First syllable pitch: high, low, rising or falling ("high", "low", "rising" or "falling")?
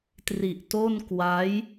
low